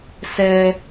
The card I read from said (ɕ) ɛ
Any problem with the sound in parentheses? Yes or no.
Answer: yes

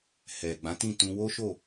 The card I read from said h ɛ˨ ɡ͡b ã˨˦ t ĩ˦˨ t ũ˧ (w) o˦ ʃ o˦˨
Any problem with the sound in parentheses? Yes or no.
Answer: no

